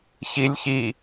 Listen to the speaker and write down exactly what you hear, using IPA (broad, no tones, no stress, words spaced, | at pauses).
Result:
çilʲ çi